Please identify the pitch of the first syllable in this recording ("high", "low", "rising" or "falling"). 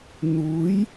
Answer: rising